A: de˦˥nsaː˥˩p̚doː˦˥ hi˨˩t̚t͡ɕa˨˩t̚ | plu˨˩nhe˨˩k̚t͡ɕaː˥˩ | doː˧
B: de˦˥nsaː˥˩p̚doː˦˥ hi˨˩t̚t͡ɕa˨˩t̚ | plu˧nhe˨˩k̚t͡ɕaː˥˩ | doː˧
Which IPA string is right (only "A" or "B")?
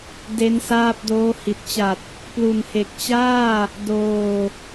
A